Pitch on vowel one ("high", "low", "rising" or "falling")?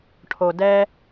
low